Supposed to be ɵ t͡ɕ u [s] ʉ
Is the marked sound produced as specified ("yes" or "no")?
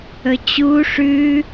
no